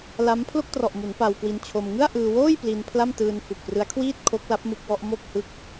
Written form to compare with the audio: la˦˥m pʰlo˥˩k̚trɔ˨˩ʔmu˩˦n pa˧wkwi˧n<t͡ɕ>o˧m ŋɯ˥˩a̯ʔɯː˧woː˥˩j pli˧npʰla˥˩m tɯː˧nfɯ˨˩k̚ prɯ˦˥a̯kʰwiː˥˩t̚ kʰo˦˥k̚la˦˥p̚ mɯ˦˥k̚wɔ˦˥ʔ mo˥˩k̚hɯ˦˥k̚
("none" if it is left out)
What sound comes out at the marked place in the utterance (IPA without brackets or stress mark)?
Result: t͡ɕʰ